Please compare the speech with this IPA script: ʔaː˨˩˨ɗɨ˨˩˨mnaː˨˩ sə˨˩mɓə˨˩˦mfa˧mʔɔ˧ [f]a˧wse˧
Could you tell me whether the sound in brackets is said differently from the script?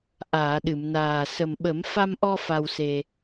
no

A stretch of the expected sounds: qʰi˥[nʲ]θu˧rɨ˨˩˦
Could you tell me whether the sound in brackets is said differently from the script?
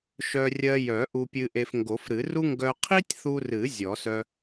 yes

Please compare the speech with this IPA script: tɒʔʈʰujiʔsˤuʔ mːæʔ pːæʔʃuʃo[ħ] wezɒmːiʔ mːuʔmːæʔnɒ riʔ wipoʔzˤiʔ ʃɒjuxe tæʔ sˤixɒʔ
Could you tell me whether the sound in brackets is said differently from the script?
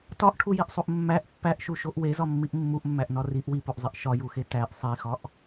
yes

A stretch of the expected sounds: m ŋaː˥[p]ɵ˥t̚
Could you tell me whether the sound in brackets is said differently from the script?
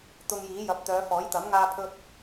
yes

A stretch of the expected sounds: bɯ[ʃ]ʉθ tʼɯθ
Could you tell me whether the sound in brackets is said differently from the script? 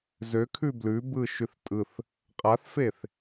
no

